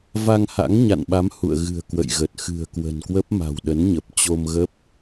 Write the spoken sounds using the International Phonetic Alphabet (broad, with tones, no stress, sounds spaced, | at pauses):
v a˧ ŋ h a̰˧˥ ŋ ɲ a̰˧˨ n ɓ a˨˦ m h ṵ˧˨ ə̯ ɣ ɨ̤˨˩ ə̯ k w ə̰˧˨ j ɣ ə˨˩ t̚ x ɨ̤˨˩ ə̯ k w ə̤˨˩ n k w ə˦˥ p̚ m a̤˨˩ w ɗ ə˨˦ n ɲ ə˨˩ p̚ t͡ɕ o˧ m ɣ ə˦˥ p̚